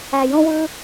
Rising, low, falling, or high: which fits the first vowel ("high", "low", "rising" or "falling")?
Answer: low